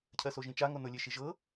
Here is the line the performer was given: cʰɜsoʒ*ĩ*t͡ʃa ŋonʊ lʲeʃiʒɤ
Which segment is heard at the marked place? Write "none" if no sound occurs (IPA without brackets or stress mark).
ĩ